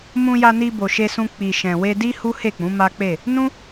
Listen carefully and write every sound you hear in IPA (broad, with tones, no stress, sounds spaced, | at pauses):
m ũ˧ j a˧ n i˧ b o˨ ʃ e˧ s ũ˧ k͡p i˨ ʃ ɛ̃˨ w e˧ d i˦ h u˦ h e˦˨ k͡p ũ˨˦ m a˦ k͡p e˦˨ | n ũ˦